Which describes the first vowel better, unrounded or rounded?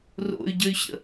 rounded